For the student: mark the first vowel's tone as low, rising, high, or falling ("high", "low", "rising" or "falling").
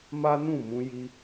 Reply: high